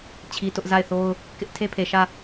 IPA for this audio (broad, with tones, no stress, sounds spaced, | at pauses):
t͡ɕʰ i˦ t ʊ˦ ʔ z a˦˨ ɪ̯ θ o˦ ʊ̯ | k ɪ˦ ʔ tʰ e˦ pʰ e˨ ʃ ä˦˨